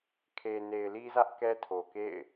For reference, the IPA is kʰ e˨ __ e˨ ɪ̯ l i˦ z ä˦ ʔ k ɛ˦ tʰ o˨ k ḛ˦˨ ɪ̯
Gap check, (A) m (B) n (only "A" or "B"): B